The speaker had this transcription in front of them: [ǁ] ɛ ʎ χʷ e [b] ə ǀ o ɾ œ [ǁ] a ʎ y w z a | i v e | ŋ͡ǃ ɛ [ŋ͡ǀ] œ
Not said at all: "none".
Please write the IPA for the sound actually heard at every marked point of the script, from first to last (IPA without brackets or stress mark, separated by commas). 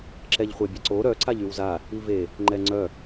ǁ, bʲ, ǀ, ŋ͡ǀ